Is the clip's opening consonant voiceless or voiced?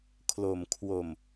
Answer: voiceless